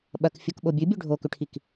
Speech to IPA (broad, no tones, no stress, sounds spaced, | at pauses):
ɓ ɐ k fʲ u k ɓ o bʲ ʉ bʲ ʉ ɖʱ o k ʉ ʈʰ i k